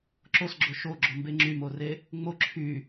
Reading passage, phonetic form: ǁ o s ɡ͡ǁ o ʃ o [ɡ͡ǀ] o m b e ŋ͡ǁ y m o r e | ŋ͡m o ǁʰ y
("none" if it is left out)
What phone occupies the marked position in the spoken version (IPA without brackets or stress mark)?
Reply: ɡ͡ǁ